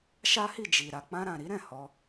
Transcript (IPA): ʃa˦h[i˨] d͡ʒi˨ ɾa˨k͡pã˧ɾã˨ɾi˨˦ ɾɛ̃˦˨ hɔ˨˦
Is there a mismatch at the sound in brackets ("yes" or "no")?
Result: yes